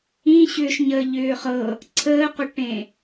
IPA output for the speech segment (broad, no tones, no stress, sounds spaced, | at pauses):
ĩ ɕ ʏː ʃ ɲ əː ʎ ʏː χ ɤ | ǀʰ əː q ʏ ʈ ẽ